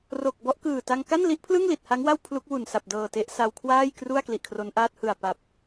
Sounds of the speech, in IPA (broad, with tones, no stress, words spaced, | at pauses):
ro˨˩k̚bɔ˦˥ʔ kɯː˨˩ta˧ŋ ka˥˩nli˦˥ʔpʰlɯ˥˩ŋli˨˩t̚ ha˦˥ŋwa˥˩w pʰlu˦˥k̚wu˨˩n sa˨˩p̚dɤː˨˩te˦˥ʔ sa˧wkʰwaː˥˩jkru˥˩a̯ kli˨˩ʔkʰro˦˥nʔaː˥˩t̚ hɯ˨˩a̯pa˨˩p̚